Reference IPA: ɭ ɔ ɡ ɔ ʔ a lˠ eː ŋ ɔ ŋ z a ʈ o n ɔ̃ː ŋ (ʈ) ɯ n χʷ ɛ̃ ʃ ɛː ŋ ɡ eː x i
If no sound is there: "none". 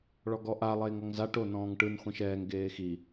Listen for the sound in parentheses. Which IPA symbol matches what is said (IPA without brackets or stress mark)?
ʈ